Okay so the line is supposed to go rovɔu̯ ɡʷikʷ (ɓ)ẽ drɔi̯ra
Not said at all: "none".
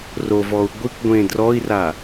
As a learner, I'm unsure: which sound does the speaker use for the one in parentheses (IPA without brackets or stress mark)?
ɡʷ